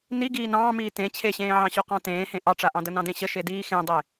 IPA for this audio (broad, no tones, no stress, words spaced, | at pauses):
niɡiː nɑ̃ːmiː tẽ t͡ɕʰeɕẽːʕɑ̃ɕo qɑ̃tẽːhẽ ʔɑʈ͡ʂaʔɑ̃də nɑ̃dẽɕə ʃediːxẽdˤe